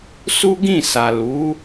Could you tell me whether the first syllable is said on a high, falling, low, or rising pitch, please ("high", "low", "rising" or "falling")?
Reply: high